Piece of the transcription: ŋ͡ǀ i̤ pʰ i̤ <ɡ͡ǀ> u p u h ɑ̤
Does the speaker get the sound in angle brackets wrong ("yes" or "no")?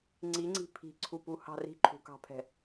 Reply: yes